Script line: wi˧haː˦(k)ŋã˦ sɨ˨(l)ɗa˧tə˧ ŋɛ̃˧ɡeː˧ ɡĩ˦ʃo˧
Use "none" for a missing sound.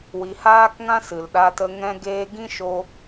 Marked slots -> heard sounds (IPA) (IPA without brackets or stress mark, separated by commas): k, l